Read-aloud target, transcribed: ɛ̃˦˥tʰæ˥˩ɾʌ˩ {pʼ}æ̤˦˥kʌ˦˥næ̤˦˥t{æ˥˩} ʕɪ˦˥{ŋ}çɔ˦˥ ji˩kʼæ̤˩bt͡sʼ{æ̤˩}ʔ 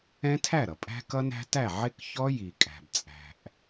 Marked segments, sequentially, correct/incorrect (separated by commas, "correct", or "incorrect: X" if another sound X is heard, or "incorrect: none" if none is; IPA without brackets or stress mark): correct, correct, incorrect: k, correct